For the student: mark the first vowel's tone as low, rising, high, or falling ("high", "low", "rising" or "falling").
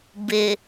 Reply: low